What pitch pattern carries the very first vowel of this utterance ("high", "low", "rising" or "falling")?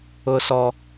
high